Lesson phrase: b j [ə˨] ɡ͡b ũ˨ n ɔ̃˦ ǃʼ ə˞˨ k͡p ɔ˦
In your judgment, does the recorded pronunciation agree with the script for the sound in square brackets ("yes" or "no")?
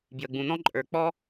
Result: yes